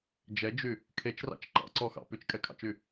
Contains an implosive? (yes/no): no